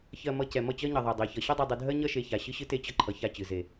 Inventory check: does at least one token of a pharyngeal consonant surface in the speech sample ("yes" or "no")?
no